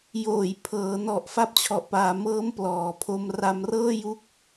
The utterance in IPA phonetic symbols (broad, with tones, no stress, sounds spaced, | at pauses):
j oː˨˩ j pʰ ɤː˩˦ n ɔ˨˩ ʔ f a˦˥ p̚ t͡ɕʰ ɔ˨˩ ʔ p aː˩˦ m ɤː˦˥ m p l ɔː˩˦ pʰ o˧ m r a˧ m r ɤː˥˩ j u˦˥ k̚